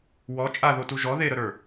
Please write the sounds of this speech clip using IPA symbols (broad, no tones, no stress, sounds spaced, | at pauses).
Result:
w ɔ t͡ʃʼ a ð o t u ʒ ɔ ð e ɾ ə ɾ ə˞